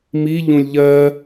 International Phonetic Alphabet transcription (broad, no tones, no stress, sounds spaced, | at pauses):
m i ʎ ũ lʲ ʎ ɜ